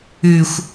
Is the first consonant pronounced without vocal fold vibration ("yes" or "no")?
yes